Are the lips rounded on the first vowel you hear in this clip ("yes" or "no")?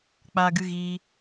no